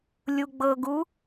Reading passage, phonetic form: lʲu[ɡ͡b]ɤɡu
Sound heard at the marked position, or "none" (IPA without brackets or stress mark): ɡ͡b